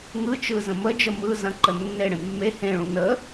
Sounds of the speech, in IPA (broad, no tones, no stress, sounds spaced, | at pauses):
ŋ ɯ t͡ʃ ɯ z ə̃ m ə d͡ʒ ə m ɯ z ɐ̃ ǃ ə nː e ɽ ẽ mː e h ẽ ɭ ũ n ə